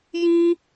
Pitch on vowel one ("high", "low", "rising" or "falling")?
high